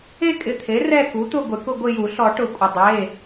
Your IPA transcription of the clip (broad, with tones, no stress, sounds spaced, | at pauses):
e˦˨ kʼ ɪ˩˧˩ t̪ʰ e˩˥ r ɛ˦˨ k u˩˥ t̪ ʊ˦˨ ɡʷ ɪ˨˩˦ k ʊ˦˨ ɡʷ ɪ˦˨ j u˨˩˦ ɬ ɔ˨˩˦ ʈ ʊ˨˩˦ kʷʼ ɪ˩ dˤ e˩˧˩